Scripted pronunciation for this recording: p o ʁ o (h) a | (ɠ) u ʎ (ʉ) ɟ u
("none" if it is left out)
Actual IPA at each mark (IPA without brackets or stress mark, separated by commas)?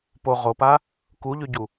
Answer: p, k, ʉ